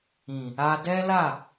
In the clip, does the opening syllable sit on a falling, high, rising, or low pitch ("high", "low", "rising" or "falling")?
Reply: low